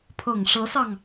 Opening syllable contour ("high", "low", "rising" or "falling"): low